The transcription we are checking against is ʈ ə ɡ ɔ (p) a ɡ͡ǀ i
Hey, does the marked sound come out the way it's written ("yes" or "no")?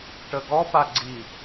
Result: yes